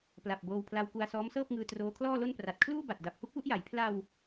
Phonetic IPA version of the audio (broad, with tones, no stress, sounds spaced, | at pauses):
p l a˨˩ p̚ b oː˧ w pʰ l a˧ w k u˧ a̯ s ɔː˦˥ m s ɤː˥˩ p̚ ŋ ɯː˧ t r oː˦˥ kʰ l ɔː˥˩ l o˥˩ n p r a˨˩ t̚ kʰ l uː˥˩ b a˨˩ t̚ d a˨˩ p̚ h u˥˩ k̚ w u˥˩ ʔ j a˩˦ j pʰ l a˧ w